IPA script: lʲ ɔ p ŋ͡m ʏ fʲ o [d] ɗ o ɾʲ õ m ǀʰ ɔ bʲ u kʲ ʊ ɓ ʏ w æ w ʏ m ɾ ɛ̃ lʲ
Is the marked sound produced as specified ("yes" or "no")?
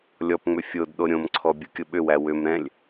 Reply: yes